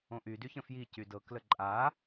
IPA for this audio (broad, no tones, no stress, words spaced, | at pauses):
õʔy dyçə̃fji cydɤ kləǃʼa